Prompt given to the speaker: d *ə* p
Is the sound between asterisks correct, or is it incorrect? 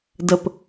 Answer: correct